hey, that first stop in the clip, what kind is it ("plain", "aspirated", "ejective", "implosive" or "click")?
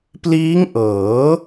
plain